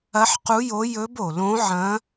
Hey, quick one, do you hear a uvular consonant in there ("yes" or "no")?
yes